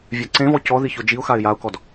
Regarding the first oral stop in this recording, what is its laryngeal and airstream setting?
click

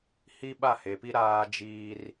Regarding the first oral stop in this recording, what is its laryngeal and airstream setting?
implosive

